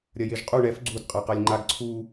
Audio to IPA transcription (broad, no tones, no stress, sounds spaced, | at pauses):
ɾʲ ɐ j e ʒ qʼ u ɳ ɛ f ɡ͡ǀ u d qʼ a q a lʲ ŋ͡ǃ a ɡ ǀʰ u